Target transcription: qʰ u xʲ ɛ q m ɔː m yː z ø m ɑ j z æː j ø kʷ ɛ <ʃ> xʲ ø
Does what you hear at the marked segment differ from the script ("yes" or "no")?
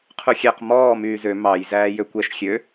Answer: no